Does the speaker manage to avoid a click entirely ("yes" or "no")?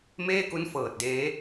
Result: yes